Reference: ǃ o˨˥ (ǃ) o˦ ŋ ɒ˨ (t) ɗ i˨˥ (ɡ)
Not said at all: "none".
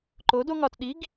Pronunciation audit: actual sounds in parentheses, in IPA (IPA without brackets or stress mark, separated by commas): d, t, ɡ